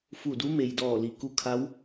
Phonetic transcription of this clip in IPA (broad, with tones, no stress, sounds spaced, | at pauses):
f u˧˩ d u˧˥ m e˩ j d ɔː˧˩ l i˩ k u˧˥ kʰ a˧˥ w